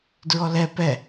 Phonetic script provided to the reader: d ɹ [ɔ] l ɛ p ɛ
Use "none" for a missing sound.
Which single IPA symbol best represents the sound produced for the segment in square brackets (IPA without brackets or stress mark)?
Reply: ɔ